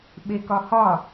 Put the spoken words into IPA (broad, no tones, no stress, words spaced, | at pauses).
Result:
ɓekɒhɒ